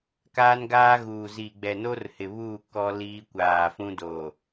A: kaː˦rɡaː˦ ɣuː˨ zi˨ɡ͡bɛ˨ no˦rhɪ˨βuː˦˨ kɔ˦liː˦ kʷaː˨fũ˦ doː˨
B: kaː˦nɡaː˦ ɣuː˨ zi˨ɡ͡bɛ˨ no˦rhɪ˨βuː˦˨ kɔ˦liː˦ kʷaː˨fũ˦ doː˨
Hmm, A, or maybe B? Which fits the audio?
B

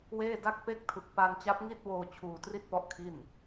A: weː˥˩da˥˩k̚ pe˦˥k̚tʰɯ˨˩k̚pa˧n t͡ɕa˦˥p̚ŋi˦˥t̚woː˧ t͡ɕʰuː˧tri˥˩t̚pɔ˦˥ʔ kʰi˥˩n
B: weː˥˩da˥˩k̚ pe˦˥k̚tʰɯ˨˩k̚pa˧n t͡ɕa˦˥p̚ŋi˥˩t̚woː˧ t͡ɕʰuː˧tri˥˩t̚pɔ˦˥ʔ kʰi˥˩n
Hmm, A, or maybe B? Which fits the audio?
B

